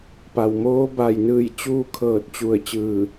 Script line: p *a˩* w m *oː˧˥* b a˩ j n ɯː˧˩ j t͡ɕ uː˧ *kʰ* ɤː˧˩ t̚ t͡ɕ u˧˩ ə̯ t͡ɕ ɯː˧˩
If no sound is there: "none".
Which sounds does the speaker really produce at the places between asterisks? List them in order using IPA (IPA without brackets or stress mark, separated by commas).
a˩, oː˧˥, kʰ